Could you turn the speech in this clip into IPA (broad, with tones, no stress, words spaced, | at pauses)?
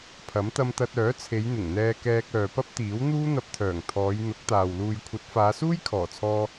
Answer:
pʰɐ˨˥mt̪ɐ˧mt̪ɐ˧t̚ œː˨˥t͡sʰe˨˧jn̪ɪ˨˩ŋ n̪ɛː˧kɛː˧k̚ œː˨pɐ˥p̚t̪iː˨˥wn̪uː˥ n̪ɐ˧p̚t̪ʰœː˨˩ŋ t̪ʰɔː˨˧j n̪ʊ˨˥k̚t̪aː˨w luː˨jkʷʰɐ˨˥t̚faː˨˧ suː˥jkʰɔː˨˩t͡sʰɔː˧